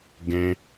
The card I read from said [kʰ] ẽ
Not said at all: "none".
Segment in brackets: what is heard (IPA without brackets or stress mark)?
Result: ɡ